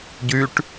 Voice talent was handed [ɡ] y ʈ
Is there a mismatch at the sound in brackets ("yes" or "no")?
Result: yes